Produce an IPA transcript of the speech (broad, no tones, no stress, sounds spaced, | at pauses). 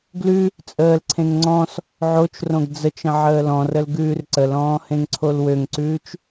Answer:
ɡ l ʉ | t͡sʼ əː l ǀʰ ẽ ŋ ŋ͡ǀ ɔ̃ s | ʕ o t͡ʃ r õ ɡ d͡z ə t͡ʃ ə̃ ʕ əː l ɔ̃ r ə l ɡ ʉː r ǀ ə l ɔ̃ː h ẽ ŋ ǀʰ o l w ø ŋ ǀ ʉː t͡ʃ